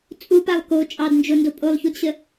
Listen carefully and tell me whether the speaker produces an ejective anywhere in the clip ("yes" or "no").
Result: yes